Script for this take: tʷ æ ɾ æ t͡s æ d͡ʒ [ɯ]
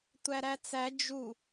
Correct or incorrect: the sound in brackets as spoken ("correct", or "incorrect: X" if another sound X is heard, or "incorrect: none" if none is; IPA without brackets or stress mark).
incorrect: u